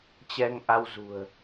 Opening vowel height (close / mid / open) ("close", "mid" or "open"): mid